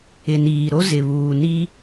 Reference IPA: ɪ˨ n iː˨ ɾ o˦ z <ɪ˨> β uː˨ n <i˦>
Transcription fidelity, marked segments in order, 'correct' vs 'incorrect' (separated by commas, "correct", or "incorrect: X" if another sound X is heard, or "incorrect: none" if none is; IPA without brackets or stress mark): correct, correct